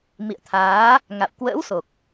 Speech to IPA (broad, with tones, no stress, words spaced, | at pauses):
mḭ˧˨ə̯t̪ʰaː˨˦ | ŋa̰˧˨w kwə̰ː˧˥wso˨˩k̚